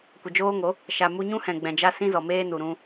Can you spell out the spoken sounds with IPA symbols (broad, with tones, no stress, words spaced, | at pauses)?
kʷə˨d͡ʒoː˦ŋo˨˦ | ʃa˨mu˧ɲũ˦hɛ̃˨ ɡ͡bɛ̃˨d͡ʒa˦ sĩ˦zɔ˨meː˦nu˨ ɾũ˧